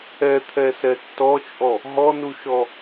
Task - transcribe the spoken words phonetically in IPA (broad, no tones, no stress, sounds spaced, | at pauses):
ɛ t̪ʰ ɛ s ɛ tː ɔ t͡ʃʼ ɔ | ɦ ɔ n u ʃ ɔ